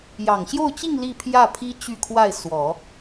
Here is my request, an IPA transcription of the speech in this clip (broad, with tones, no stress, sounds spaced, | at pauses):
j ɑ˨˩ ŋ ɕ j o˥˧ ʊ̯ t͡ɕ i˥˧ ŋ l i˥˧ pʰ j ä˥˩ pʰ i˥ t͡ɕ y˥˧ kʰ w a˥˩ ɪ̯ s w ɔ˨˩˦